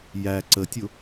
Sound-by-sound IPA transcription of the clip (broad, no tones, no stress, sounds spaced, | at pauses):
j æ ǀ ə tʲ ʊ